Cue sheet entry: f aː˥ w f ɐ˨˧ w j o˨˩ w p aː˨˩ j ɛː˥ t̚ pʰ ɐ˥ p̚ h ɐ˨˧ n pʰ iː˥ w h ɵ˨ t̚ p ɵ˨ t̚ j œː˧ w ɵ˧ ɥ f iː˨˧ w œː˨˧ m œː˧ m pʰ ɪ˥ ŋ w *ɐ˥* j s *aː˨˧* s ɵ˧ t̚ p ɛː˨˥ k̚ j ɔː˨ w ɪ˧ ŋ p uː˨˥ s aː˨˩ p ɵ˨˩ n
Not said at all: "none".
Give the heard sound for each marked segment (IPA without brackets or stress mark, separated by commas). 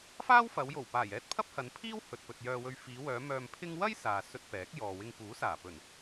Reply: ɐ˥, aː˨